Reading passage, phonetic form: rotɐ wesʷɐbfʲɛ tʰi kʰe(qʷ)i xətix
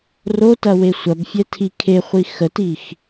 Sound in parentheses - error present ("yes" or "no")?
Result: yes